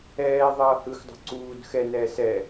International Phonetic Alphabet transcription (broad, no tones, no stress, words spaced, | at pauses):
ɛː ðˤʌːhɯxdˤo̤ ǀuːd xɛnɛː sɛː